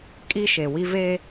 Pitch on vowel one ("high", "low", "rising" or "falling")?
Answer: high